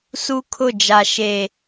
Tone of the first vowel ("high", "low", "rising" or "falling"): high